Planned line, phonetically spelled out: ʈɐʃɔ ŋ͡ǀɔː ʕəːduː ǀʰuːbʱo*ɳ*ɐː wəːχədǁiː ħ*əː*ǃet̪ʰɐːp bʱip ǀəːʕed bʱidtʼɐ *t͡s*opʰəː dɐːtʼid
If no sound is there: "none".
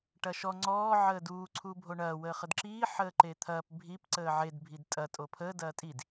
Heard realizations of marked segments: ɳ, əː, tʼ

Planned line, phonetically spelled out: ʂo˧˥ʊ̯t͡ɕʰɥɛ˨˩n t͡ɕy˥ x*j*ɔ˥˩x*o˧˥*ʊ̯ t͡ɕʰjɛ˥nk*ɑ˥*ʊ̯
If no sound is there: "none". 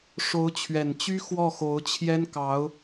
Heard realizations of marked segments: w, o˧˥, ɑ˧˥

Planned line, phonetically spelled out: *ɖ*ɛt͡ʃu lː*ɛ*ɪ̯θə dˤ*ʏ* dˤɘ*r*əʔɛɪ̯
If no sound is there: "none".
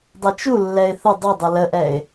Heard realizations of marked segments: dˤ, ɛ, ʏ, l

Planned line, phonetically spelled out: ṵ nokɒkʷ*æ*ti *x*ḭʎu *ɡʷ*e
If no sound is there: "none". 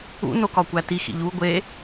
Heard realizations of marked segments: æ, x, ɡʷ

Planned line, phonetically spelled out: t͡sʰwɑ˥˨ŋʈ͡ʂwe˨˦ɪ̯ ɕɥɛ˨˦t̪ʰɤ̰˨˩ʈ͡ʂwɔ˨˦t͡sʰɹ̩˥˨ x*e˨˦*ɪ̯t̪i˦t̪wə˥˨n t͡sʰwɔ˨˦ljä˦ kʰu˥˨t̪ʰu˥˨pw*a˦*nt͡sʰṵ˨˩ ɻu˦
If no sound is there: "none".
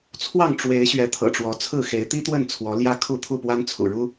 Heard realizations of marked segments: e˨˦, a˦

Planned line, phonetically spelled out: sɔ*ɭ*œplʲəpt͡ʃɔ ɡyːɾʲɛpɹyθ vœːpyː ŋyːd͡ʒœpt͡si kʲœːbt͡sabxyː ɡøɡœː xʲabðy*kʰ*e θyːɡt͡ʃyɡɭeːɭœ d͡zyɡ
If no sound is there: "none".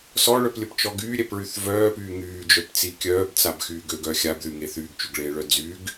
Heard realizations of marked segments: ɭ, ŋ

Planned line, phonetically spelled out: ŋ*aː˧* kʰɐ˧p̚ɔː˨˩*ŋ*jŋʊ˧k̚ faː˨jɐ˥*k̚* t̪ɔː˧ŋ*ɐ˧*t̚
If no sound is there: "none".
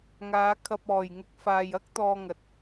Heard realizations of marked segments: aː˨˧, none, k̚, ɐ˨

